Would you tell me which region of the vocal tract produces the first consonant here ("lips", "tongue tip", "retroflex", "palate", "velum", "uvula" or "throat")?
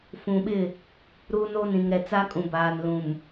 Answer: lips